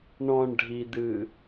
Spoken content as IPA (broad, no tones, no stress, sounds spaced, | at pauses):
ɳ ɔ̃ ɳ ɖʱ i d̪ ɨ